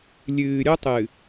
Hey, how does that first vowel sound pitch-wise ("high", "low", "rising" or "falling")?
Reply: low